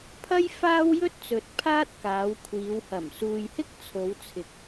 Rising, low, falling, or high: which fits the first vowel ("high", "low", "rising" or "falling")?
high